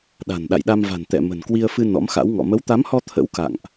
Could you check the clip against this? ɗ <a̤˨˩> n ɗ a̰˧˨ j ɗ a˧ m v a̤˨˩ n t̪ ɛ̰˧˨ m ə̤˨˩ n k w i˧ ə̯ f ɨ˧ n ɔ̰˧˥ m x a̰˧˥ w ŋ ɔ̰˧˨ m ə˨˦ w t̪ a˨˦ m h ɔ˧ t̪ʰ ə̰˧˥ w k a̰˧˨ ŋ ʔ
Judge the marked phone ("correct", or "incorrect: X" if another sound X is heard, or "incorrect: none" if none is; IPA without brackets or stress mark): correct